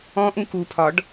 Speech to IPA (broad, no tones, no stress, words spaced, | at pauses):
ɔ̃ʔũ kupʰɒɖ